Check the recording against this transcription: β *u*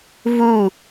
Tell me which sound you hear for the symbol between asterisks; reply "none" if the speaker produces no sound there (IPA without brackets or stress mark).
u